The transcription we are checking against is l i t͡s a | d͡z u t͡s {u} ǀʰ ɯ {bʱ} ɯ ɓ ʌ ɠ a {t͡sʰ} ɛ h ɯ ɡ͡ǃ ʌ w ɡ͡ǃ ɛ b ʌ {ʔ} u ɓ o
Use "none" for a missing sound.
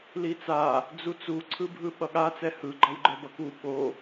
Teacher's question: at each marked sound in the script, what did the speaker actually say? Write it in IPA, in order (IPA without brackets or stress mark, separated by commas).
u, bʱ, t͡s, k